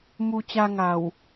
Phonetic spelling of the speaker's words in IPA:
m u˧ t͡ɕ a˧ ŋ a˨˩ w

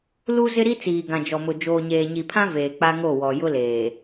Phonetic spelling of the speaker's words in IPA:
l u˦ z ɪ˦ ɾ i˦ t͡s iː˨ ɡ ã˨ d͡ʒ ɔ˨ m ʊ˨ d͡ʒ oː˨ ɲ eː˨ ɲ i˨ pʰ ã˦ v eː˨ k͡p a˦ ŋ o˦˨ w ɔ˨ j ʊ˦ l eː˨

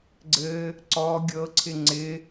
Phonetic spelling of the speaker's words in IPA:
ɡ͡ǀ ɘ | ǀ ɔ ɡʲ ɤ ǀʰ ɪ ŋ͡ǀ ɪ

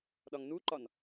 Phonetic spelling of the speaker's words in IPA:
ɗ ɒ ŋ n u ǃ ɒ n

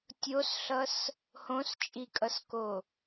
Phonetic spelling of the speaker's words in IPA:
tʲ o s ɬ ʌ s | h õ s t͡ʃʼ i kʼ ʌ s k o

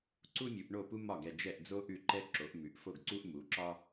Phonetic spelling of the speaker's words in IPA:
ǀ u˦ mʲ u˩˧ ʔ ɳ o˦˨ p u˦ m ɒ˦˨ ɡ ɛ˦˨ d͡ʒ ɛ˦˨ ʔ d͡z o˦ ʔ ʉ˦˨ ǃ ɛ˦ ǁ o˩˧ ʔ m ʉ˩˧ ʔ f o˦˨ ɡ ǀ u˦ ʔ m u˩˧ ǁ ɒ˦

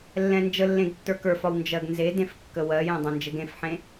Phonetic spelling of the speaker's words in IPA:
lː ɛ̃ n d͡ʒ ə lː ẽ ɡ tː ə˞ k ə˞ f ɒ w n d͡ʒ ɜ ɡ n z e d ẽ f kː ə w ɜ j ẽ dˤ ɛ̃ n d͡ʒ ɘ ɡ ẽ f ħ ẽ

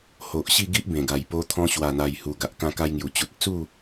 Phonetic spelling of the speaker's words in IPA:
h o˨ ʔ ɕ i˥˧ ɡ i˦ ʔ b ẽ˨˩ ɡ a˨˩ j p o˦ t̪ʰ ɔ̃˦ ɕ w a˨˩ n̪ a˨˩ j h u˨˩ ɡ a˨ ʔ k ã˧ k a˧ j ŋ j u˨˩ t͡ɕ u˨ t̚ ə˧ t͡s u˥˧

